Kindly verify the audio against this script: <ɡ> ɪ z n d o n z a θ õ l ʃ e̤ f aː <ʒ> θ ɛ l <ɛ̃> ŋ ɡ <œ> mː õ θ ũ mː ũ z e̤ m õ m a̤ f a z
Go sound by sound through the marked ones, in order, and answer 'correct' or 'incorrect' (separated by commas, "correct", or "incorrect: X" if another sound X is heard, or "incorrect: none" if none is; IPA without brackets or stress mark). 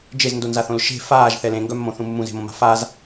incorrect: d͡ʒ, correct, incorrect: ẽ, correct